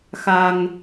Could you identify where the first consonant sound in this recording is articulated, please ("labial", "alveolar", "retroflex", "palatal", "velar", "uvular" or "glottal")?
velar